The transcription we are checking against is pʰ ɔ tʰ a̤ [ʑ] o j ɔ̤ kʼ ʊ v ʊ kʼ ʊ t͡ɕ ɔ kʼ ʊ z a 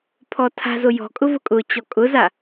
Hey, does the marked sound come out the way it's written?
no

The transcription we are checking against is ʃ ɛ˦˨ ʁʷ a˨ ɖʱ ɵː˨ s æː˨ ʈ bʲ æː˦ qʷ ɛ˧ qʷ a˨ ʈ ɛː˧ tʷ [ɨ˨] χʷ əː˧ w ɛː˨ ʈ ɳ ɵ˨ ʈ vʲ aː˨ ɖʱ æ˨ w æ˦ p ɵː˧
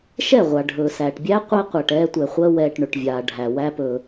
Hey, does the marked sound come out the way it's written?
no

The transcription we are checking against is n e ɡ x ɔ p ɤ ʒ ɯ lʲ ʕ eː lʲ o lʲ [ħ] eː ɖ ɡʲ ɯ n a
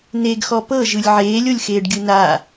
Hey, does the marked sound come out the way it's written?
no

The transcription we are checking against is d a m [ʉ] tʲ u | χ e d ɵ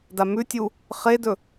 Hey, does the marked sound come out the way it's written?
yes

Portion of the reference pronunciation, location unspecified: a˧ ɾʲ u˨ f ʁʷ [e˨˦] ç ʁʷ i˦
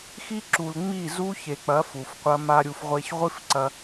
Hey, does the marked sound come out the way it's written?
no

